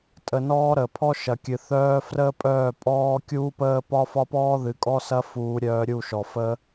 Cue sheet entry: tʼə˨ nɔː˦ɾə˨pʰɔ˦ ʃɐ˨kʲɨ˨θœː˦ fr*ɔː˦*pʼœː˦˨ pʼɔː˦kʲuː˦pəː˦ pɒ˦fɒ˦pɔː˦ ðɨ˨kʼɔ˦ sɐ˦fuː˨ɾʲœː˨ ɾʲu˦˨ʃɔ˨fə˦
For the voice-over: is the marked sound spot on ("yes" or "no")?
no